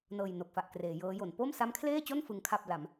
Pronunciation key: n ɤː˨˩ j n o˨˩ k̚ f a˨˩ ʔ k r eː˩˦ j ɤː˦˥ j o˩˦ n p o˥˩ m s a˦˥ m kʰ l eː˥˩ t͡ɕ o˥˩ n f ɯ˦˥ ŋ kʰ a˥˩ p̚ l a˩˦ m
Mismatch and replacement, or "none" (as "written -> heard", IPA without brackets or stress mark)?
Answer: none